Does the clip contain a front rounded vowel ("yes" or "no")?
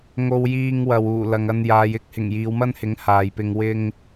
no